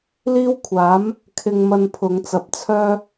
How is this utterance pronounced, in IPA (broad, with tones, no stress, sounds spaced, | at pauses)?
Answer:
l iː˥ w kʷʰ aː˨˥ m | kʰ ɪ˧ ŋ m ɐ˧ n pʰ ʊ˨˧ ŋ t͡s ɐ˨ p̚ t͡sʰ œː˥